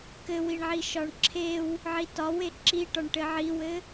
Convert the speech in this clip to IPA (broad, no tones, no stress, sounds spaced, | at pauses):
k ɘ w i ɳ ʕ i ʃ ɒ ɳ ǁʰ e w | ʕ i t ɒ w e ǁ i ʈ ɒ ɳ ʈ ɘ ʕ i w ɘ